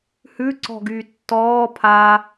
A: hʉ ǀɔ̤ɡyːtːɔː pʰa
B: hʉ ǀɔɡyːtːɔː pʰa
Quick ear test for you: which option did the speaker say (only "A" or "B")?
A